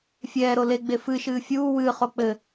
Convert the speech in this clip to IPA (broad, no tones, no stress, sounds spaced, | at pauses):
fʲ ɛː ɾ o l e ɡ͡b e f ɨ ʃ ɨː fʲ uː w ɨː χ o k͡p ɘ